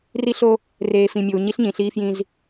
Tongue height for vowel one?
high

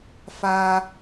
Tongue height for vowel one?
low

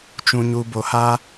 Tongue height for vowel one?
high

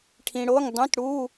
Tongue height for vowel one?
high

